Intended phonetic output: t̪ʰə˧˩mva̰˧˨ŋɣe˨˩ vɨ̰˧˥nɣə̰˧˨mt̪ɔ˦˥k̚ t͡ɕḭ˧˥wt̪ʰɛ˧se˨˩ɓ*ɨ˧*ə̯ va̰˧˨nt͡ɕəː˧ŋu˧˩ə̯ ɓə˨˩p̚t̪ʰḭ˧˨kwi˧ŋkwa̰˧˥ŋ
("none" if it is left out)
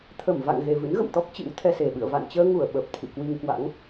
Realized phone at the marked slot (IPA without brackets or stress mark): ɨ̰˧˨